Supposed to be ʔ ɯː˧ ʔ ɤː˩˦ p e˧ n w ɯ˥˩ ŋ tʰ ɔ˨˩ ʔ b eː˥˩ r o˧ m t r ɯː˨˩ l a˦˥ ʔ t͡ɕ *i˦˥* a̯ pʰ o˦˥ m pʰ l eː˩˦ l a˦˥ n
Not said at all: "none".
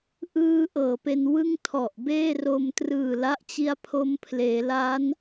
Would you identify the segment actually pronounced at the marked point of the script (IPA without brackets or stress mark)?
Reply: i˦˥